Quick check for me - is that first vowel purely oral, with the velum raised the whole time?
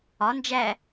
yes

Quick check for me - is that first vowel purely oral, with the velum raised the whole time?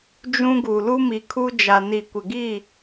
no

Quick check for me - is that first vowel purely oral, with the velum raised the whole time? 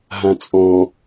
no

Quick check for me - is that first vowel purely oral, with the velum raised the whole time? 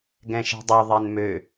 no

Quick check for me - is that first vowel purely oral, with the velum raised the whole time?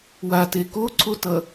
yes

